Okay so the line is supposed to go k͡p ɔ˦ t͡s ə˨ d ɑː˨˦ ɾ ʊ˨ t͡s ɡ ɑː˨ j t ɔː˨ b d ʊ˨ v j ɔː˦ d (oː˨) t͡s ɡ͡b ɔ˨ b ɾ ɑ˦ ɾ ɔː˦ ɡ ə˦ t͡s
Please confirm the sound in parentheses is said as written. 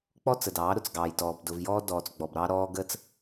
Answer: no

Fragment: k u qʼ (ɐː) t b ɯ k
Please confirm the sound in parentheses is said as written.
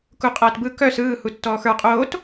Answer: yes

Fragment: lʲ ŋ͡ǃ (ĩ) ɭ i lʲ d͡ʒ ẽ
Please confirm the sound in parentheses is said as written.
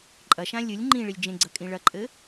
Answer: yes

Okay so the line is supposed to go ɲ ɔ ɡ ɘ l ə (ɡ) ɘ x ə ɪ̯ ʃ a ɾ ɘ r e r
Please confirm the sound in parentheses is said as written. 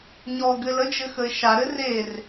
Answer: no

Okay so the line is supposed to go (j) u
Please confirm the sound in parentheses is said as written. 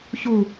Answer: no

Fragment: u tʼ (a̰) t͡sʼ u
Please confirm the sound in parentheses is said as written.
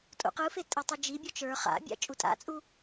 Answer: yes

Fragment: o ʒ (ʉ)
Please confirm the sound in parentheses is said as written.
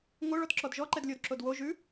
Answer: yes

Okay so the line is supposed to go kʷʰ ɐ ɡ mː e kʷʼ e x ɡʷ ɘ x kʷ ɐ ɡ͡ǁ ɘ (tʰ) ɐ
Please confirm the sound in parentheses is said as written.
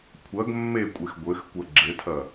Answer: yes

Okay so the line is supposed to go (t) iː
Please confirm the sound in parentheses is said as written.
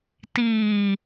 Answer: yes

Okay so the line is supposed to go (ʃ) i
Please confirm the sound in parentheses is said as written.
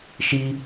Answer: yes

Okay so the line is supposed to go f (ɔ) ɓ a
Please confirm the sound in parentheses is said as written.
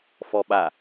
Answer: yes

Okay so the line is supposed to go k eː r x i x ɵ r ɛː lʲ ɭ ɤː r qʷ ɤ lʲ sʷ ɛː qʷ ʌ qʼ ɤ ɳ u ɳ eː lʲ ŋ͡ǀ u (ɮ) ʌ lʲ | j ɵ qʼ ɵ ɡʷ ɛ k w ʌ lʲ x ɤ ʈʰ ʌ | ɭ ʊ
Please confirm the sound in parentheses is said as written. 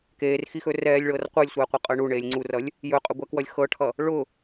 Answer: no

